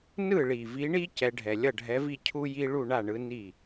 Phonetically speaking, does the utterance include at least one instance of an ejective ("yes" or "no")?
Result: no